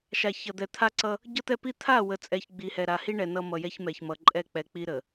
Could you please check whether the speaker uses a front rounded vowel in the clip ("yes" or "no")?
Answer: no